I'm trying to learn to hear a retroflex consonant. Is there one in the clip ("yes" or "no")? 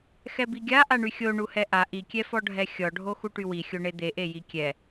yes